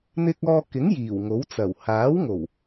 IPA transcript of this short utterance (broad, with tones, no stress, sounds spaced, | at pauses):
n̪ ɪ˧ k̚ ɔː˧ k ɪ˨˥ ŋ j iː˨˩ w ŋ o˨˥ w t͡s ɐ˨˩ w h aː˨˥ w ŋ o˨˩ w